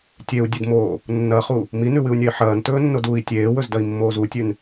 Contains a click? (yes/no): no